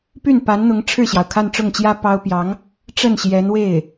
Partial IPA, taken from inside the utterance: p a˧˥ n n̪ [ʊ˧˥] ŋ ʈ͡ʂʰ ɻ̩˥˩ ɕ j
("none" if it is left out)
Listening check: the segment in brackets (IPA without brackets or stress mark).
ʊ˧˥